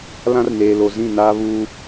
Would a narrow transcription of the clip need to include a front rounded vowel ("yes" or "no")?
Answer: no